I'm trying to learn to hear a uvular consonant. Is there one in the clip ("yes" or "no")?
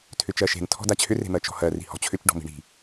no